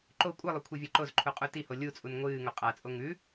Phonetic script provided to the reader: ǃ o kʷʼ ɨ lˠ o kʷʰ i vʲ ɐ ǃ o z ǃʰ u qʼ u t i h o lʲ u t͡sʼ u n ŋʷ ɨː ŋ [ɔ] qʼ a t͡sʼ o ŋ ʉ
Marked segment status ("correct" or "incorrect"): incorrect